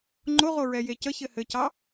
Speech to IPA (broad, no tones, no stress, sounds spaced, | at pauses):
ŋ͡ǃ o ʁ o ɹ ɛ j e c ə ç ɘ h ɘ c ɑ